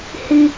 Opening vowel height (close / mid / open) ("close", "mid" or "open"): close